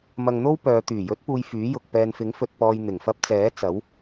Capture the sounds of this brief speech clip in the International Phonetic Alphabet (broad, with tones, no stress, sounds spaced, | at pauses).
m ɐ˧ ŋ n̪ o˥ w p œː˨˧ t̪ yː˨˩ j ɵ˨˥ t̚ p uː˨ j f yː˨˥ j ʊ˨ k̚ p ɛː˨ n f ɪ˨˥ ŋ f ɵ˨ t̚ p ɔː˨ j n̪ ɪ˨˩ ŋ f ɐ˧ p̚ t͡s ɛː˨˥ t͡s ɐ˨˥ w